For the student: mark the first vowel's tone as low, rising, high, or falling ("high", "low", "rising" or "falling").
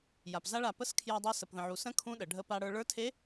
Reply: low